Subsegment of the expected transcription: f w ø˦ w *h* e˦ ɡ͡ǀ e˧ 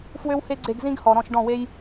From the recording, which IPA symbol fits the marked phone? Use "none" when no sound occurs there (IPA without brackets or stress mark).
h